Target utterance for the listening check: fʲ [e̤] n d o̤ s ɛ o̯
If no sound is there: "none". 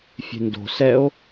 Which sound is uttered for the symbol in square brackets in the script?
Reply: e̤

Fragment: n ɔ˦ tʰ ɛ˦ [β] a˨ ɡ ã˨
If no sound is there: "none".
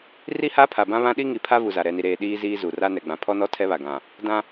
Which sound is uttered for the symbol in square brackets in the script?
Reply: β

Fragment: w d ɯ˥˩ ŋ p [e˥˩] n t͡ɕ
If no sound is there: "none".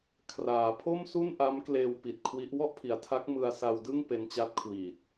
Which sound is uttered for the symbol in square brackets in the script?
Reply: e˦˥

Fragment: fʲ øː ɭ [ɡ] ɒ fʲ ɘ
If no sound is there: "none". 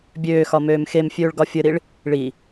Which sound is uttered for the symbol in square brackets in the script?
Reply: ɡ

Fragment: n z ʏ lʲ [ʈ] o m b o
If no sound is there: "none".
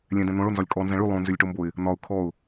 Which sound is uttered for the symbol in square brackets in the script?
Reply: ʈ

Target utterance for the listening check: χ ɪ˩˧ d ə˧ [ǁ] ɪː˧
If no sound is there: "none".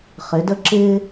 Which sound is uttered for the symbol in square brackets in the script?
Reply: ǁ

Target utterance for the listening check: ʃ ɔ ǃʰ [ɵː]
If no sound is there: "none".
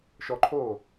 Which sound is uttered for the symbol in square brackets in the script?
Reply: oː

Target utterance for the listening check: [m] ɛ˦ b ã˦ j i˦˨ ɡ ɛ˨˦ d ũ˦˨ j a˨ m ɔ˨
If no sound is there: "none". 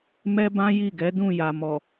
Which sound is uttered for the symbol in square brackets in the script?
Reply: m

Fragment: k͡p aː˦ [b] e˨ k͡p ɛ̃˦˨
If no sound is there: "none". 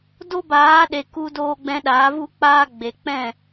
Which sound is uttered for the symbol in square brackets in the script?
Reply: ɡ͡b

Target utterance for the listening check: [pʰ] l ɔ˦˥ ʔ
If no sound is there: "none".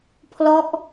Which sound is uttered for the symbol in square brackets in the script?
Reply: pʰ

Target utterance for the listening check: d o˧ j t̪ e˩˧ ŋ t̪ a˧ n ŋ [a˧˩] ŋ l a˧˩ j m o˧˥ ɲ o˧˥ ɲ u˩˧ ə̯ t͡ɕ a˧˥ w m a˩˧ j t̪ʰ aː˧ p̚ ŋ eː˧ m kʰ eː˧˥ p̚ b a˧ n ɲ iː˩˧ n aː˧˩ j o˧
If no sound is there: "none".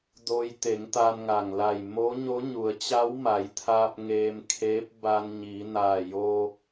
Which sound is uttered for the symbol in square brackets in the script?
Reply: a˩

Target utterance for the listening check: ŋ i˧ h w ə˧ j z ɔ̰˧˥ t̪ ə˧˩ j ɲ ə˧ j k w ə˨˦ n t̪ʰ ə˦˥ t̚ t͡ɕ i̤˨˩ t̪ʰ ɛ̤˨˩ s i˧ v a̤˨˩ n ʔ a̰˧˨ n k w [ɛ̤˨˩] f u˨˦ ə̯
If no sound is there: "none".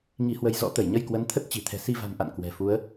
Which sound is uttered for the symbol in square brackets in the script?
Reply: ɛ̤˨˩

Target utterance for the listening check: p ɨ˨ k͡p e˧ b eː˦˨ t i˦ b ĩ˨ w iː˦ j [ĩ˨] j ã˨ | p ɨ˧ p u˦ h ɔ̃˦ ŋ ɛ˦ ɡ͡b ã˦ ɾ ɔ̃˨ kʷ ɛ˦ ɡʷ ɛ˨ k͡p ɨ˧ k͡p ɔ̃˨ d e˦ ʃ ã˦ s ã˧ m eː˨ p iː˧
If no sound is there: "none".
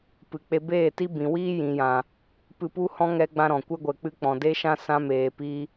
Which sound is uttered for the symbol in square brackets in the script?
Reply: ĩ˨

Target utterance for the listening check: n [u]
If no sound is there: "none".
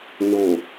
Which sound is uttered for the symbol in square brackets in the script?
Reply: o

